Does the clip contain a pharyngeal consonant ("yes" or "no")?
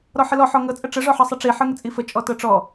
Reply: yes